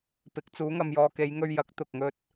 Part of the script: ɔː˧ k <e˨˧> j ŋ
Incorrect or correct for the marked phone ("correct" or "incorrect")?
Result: correct